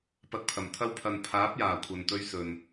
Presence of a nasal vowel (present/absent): absent